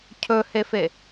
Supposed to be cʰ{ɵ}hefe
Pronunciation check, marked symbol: correct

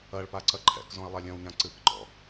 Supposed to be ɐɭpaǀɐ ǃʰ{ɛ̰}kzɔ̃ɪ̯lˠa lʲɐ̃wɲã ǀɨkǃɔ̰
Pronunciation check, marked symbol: correct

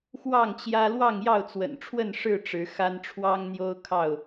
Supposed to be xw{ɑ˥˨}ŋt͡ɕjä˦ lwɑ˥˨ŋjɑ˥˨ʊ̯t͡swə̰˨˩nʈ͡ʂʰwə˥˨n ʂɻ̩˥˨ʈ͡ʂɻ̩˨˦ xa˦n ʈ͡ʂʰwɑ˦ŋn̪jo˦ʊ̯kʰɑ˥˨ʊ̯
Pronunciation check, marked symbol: correct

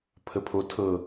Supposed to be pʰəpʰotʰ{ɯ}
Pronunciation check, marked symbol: incorrect: ɤ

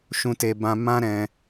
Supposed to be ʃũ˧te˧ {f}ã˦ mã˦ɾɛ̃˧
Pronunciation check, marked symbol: incorrect: b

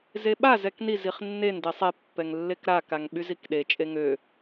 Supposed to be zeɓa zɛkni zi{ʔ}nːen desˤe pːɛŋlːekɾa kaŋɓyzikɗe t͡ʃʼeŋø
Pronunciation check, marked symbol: incorrect: χ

